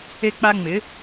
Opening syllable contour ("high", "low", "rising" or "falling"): high